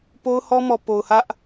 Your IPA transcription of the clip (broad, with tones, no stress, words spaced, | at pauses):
po˦ʊ̯hɔ˦mɔ˨ po˨ʊ̯hä˦ʔ